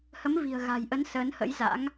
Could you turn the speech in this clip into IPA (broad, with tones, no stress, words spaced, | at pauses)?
hə˨˦mvi̤˨˩ə̯ɣa̤˨˩j ʔə˨˦n səː˨˦nhə̰˧˥jza̰˧˥ŋ